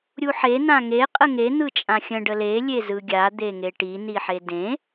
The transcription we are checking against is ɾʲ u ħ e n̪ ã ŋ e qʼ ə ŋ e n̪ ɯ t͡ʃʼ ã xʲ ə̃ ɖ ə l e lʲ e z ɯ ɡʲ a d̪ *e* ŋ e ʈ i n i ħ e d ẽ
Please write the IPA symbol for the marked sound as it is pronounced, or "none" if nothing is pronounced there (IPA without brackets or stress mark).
e